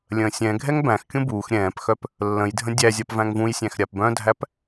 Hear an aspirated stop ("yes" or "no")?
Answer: no